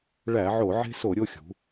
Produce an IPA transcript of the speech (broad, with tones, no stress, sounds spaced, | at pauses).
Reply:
ɭ æ˧˩˧ ʕ o˧˩˧ ʕ e̤˦ s o˧˩˧ ɾʲ o˦ xʲ ṳ˩˧